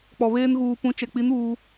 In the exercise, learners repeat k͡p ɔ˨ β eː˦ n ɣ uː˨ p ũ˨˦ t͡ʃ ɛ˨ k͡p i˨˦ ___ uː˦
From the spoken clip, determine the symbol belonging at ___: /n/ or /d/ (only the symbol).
n